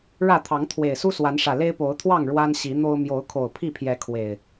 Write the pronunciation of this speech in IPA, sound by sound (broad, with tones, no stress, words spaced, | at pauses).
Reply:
ɻä˥˨t̪ʰɑ˨˦ŋ t̪ʰwe˨˩ɪ̯su˦ swa˨˦nʂä˨˩ le˦ɪ̯po˨˦ʊ̯t̪ʰwɑ˥˨ŋ ɻwa˦nɕi˨˦n̪o˦ʊ̯ mjo˨˦ʊ̯kʰo˨˩ʊ̯ pʰi˥˨pʰjɛ˨˦ kʰwe˨˩ɪ̯